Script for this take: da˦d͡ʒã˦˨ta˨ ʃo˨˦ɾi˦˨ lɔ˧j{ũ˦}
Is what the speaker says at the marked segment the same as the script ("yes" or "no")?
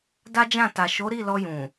no